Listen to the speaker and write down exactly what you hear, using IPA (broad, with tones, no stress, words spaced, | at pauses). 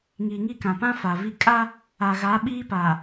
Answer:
ŋiː˨ŋi˦˨kã˨pã˦ fa˨ vi˦ kʼa˦ | a˨ɣa˨˦ ɓiː˦pa˨